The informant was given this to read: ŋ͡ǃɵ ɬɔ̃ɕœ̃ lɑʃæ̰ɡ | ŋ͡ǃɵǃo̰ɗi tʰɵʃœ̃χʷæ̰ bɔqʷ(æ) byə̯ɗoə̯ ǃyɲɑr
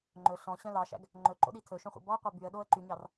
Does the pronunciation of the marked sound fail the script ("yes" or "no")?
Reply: yes